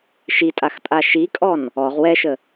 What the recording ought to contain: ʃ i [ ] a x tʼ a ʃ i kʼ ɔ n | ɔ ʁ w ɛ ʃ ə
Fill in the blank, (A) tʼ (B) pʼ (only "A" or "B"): A